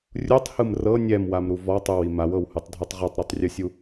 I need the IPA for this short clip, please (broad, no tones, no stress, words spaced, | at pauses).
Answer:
rʲutˤhɯm rɤ nʲɛmwamɾu vɔtˤɯwi mawɤwhutˤdʱutˤ ʁotˤɾɤtˤrʲɯsʲu